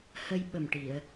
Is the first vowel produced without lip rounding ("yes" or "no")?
yes